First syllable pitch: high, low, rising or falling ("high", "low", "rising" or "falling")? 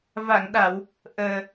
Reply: low